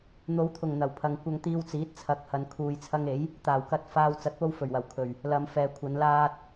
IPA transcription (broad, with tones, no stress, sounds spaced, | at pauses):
n̪ o˨˧ w t̪ʰ ʊ˨˩ ŋ n̪ ɐ˨˩ w pʰ ɐ˨ ŋ kʷ ɐ˧ ŋ t̪ iː˧ w t͡s iː˨˥ t̚ t͡sʰ ɐ˨˥ k̚ h ɐ˨ n kʰ uː˨ j t͡sʰ ɐ˧ ŋ e˨˥ j | t̪ aː˨˩ w k ɐ˧ t̚ f aː˧ w t͡s ɐ˨˥ t̚ p o˧ w f ɵ˨˩ ɥ w ɐ˨˩ w kʰ ɵ˨˩ ɥ | l ɐ˨ m f ɛː˨ kʷʰ ɐ˨˧ n l aː˧ t̚